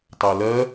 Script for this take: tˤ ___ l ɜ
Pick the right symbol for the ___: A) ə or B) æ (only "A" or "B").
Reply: B